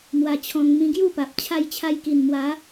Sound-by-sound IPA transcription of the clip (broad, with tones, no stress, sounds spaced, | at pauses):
m w a˧ t͡ɕʰ ɔ̃˧ ŋ m ĩ˧ ɡ j u˥˧ p a˨ p̚ t͡ɕʰ a˧ j t͡ɕʰ a˧ j k i˨˩ n m w a˨˦